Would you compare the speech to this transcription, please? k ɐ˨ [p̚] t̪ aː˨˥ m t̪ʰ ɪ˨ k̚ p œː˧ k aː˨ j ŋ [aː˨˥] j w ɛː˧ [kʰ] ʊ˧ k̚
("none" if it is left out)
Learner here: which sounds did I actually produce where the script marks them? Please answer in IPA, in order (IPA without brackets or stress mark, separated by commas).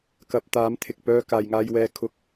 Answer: p̚, aː˧, kʰ